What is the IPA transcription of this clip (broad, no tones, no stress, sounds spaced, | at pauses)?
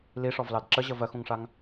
l i ʂ ɔ v l ɑ d ǁ ə ʑ ə v ɜ x ũ ŋ ʂ a ŋ